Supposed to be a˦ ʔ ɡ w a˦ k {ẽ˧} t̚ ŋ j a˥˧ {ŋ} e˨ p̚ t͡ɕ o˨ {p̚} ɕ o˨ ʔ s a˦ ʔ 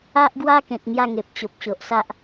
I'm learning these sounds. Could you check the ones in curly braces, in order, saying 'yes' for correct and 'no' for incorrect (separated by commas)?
no, yes, yes